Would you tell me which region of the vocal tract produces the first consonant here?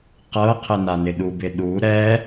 uvula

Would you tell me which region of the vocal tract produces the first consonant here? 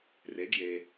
tongue tip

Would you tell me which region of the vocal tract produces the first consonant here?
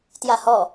tongue tip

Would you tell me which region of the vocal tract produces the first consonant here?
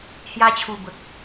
throat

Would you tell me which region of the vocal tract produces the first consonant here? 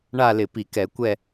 retroflex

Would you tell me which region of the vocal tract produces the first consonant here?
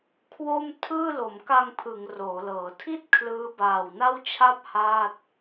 velum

